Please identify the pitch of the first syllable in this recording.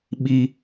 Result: low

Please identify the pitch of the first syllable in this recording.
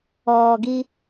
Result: low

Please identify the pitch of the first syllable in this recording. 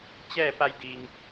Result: falling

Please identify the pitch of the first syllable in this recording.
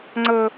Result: high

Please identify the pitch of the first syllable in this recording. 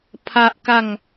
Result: high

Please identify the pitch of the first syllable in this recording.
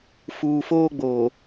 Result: low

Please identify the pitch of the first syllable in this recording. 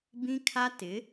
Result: high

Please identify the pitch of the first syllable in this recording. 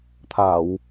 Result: low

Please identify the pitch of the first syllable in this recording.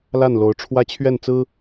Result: falling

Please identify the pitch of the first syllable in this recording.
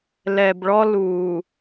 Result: low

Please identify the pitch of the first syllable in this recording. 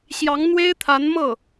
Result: rising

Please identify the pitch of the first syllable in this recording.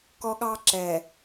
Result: high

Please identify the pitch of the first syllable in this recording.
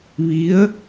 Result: rising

